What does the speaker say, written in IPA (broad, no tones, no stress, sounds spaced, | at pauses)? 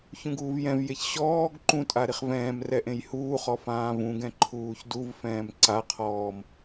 ç ũ ɡ uː v j ɛ̃ v j e ç ɕ ɔː ɡ ǃ ũ tʼ a ɾ i χ v ɛ̃ː m r ɛ ʔ ẽ j h uː χ ɔ f ãː v ũ ɡ ɛ̃ ǃʰ uː ç d u v f ɛ̃ː m ǀ a qʰ ɔː m